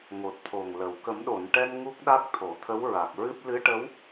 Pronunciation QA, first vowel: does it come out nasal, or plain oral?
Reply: oral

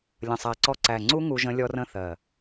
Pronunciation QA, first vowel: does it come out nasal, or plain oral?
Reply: nasal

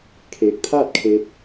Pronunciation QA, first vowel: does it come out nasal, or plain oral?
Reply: oral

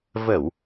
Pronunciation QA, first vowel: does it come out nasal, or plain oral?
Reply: oral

